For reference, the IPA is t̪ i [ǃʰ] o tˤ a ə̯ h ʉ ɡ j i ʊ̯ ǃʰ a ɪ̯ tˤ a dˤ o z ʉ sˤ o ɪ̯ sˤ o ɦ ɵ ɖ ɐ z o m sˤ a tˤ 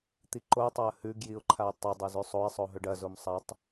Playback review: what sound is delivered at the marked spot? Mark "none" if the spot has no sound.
ǃ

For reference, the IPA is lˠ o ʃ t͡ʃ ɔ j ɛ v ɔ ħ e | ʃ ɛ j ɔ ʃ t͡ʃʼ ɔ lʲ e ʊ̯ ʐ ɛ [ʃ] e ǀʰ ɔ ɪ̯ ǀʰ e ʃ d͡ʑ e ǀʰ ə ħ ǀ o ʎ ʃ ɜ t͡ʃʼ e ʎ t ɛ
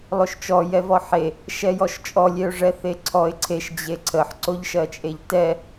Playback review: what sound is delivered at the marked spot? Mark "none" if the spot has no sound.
θ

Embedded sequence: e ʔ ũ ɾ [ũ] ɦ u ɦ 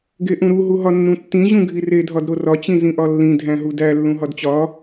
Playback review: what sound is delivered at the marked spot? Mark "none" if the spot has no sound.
u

